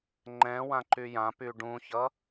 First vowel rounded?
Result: no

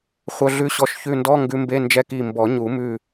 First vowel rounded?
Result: yes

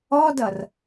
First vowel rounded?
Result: yes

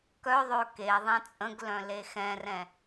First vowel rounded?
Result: yes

